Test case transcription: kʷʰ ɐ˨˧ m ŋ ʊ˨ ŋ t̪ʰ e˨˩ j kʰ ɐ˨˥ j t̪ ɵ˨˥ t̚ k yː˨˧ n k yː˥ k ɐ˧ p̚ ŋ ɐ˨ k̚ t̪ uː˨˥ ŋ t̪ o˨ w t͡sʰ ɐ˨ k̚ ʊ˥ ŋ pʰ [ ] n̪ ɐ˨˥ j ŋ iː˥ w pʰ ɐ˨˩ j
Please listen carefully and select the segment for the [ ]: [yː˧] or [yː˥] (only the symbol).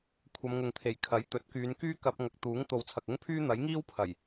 yː˥